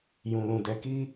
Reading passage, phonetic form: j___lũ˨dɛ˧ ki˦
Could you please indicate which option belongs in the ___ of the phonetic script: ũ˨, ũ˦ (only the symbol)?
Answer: ũ˨